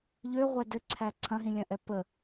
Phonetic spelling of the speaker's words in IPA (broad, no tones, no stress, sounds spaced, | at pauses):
ʎ ø ʁʷ ɛ d ɘ ǀʰ æ ǀʰ ɐ̃ ɦ ĩ lʲ ɐ̃ ʔ ɛ p ə